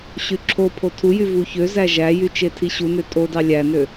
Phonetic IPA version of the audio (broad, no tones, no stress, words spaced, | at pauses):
ɕyǁʰopʰo tʰujy vuçøzæ ʒæjy t͡ʃetʰiɕunø tʼodɑ lʲænø